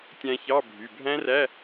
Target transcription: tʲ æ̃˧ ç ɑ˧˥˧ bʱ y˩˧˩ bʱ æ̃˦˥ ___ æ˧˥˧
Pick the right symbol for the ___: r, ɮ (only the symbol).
r